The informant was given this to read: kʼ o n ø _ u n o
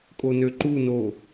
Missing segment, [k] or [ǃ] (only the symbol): ǃ